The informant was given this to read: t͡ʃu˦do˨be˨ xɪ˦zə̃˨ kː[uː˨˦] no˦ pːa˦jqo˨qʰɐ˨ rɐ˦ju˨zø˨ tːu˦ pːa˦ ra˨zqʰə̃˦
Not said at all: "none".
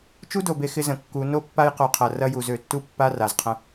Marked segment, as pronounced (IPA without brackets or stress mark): u˨˦